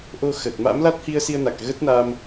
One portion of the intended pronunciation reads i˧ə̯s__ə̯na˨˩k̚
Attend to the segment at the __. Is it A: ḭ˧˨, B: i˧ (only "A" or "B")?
B